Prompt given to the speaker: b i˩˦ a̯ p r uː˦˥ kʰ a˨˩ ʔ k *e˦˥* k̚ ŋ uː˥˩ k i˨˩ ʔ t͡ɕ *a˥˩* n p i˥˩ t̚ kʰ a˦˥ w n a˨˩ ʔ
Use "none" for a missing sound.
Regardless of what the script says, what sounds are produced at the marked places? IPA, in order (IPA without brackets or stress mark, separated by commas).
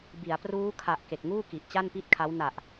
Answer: e˨˩, a˥˩